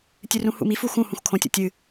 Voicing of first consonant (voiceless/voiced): voiceless